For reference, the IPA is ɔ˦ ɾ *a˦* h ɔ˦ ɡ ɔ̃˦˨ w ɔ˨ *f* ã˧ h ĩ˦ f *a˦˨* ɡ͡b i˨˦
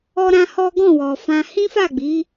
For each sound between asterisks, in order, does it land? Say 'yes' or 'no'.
no, yes, yes

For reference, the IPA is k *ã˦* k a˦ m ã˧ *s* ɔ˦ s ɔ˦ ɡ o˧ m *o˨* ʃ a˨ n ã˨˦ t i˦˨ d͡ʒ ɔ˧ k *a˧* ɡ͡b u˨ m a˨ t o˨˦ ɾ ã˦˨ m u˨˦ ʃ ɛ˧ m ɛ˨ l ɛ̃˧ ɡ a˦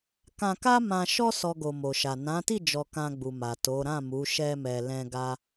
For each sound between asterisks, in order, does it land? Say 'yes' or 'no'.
no, no, yes, no

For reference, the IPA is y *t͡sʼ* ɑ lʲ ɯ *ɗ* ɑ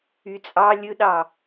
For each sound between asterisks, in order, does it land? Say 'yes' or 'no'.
yes, yes

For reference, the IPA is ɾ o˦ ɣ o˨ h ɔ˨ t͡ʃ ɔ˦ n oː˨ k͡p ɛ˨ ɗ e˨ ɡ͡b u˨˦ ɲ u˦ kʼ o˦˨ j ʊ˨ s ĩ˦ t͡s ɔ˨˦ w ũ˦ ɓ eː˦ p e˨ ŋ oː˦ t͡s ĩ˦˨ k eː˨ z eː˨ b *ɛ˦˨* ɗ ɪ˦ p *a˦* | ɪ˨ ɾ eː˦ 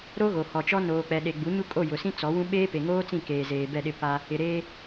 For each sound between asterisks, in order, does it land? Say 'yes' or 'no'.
yes, yes

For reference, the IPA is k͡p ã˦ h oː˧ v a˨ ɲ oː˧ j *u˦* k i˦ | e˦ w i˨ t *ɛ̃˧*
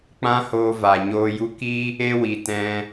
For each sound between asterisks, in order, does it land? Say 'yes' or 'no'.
yes, yes

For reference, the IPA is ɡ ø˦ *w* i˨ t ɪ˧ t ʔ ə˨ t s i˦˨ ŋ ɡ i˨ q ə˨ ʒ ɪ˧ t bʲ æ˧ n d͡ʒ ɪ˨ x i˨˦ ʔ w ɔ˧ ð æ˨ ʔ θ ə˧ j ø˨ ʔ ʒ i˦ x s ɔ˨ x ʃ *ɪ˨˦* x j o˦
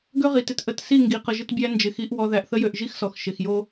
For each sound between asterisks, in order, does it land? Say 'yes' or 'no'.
no, no

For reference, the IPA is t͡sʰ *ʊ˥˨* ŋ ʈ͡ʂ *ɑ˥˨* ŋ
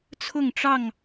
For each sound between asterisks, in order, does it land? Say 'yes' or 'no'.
yes, yes

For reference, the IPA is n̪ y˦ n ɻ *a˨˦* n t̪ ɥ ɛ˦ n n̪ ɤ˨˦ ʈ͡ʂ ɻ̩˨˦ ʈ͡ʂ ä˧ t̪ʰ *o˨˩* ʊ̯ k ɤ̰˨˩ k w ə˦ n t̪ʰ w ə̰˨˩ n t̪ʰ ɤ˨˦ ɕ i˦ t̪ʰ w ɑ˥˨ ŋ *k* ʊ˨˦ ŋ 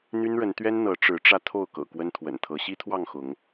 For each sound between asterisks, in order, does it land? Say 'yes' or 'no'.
no, no, no

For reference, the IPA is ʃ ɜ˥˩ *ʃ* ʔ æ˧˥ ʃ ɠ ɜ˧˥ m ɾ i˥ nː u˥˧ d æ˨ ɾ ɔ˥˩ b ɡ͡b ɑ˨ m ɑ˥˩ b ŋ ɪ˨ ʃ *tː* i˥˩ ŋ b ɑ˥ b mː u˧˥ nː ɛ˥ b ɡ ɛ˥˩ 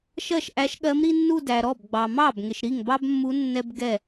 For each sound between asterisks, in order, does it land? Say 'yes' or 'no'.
yes, no

